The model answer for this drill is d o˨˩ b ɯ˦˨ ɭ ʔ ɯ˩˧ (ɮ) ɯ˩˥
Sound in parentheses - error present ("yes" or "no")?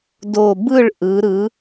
yes